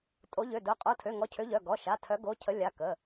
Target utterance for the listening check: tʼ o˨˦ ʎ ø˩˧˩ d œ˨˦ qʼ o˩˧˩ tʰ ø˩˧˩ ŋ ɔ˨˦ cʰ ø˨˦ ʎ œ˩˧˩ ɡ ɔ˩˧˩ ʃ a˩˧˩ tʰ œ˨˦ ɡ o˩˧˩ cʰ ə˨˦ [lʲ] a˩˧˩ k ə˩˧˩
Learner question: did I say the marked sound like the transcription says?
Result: yes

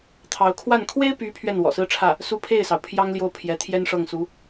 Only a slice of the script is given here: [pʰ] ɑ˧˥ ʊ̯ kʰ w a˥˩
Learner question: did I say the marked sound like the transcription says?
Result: no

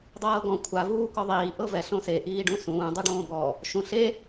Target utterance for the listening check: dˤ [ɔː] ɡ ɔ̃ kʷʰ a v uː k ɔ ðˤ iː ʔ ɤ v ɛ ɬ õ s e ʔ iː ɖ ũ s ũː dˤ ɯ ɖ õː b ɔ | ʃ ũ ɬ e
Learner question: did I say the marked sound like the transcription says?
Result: no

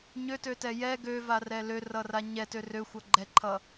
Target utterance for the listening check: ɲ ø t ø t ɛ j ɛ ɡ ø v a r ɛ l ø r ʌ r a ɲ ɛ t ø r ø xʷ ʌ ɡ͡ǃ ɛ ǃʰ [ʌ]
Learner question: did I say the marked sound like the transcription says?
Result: yes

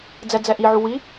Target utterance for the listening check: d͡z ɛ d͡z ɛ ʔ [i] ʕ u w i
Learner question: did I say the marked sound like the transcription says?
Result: yes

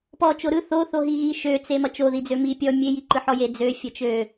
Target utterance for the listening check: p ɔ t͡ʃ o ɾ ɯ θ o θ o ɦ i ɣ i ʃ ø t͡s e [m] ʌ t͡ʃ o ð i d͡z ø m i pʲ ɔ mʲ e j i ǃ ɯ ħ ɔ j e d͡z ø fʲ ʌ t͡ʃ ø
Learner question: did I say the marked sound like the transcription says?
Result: yes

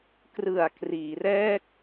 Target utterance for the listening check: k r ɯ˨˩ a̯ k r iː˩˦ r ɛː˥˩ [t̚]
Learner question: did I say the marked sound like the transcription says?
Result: no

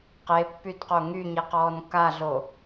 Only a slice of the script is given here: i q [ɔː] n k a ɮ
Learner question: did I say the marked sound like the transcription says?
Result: yes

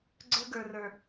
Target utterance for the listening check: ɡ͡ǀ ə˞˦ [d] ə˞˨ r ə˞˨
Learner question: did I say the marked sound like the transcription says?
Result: no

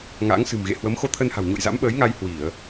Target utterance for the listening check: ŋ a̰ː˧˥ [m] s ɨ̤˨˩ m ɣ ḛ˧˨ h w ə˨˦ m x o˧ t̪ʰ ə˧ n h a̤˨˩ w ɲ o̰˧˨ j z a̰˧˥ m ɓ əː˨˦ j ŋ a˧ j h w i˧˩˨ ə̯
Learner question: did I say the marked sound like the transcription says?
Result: no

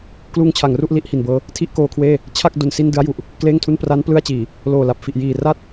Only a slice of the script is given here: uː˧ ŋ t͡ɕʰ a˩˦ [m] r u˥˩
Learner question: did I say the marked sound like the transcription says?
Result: no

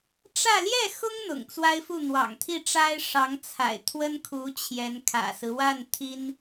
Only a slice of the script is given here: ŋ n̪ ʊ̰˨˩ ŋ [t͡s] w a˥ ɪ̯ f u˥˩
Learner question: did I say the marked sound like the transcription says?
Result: yes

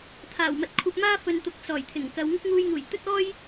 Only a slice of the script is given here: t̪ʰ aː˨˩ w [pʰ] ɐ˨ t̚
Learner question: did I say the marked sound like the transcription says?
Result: no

